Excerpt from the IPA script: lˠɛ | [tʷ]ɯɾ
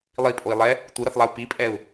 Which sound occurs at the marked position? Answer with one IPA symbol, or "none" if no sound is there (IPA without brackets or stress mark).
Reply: tʷ